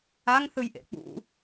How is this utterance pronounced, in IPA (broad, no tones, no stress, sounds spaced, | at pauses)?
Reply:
a ŋ θ ɯ j ʔ ḛ k͡p ṵ